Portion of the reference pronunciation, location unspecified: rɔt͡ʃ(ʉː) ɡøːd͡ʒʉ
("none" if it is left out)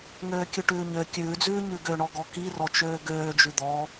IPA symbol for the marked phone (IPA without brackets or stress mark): øː